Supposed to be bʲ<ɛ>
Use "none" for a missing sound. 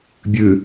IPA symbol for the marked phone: ɨ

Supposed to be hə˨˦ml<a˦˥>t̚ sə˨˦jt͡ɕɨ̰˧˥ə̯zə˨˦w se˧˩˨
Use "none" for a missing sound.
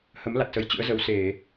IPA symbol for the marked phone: a˨˩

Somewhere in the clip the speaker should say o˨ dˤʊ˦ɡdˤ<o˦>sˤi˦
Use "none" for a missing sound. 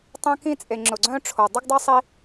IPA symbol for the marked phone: o˦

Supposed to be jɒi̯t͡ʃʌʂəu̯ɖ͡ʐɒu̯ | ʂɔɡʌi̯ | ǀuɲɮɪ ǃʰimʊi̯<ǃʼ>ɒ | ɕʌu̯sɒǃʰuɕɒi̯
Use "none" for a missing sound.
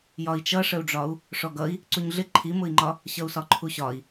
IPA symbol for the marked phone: ŋ͡ǃ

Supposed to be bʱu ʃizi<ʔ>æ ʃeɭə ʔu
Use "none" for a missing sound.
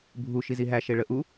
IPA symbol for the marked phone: ɦ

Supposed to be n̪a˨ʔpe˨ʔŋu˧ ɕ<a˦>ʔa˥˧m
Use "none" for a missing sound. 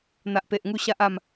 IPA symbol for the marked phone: a˦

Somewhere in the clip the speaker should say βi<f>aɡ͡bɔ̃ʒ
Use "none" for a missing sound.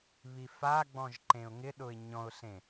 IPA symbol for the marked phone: f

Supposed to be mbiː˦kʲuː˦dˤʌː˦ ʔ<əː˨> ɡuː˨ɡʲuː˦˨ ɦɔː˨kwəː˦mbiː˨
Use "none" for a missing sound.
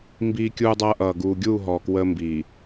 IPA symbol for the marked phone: ʌː˨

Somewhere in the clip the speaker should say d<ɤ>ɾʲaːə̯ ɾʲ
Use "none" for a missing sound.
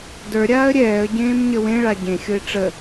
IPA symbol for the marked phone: ə˞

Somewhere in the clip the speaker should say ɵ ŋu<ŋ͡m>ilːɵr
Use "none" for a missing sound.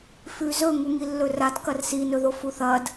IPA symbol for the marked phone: ŋ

